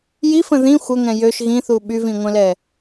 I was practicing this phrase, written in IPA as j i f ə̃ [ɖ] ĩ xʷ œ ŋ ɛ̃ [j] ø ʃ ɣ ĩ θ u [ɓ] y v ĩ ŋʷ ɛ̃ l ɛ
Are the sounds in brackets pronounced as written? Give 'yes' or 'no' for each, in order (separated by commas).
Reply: no, yes, yes